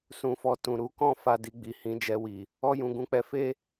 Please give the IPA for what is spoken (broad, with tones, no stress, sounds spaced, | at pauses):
s ũ˧ f ɔ˧ t ũ˨ ɾ u˧ k ɔ̃˦ f a˦˨ d i˧ ɡ͡b i˨ h ĩ˨˦ d͡ʒ ɛ˧ w i˨ | ɔ˦ j ũ˧ ɡ ũ˦ k͡p ɛ˦ f e˦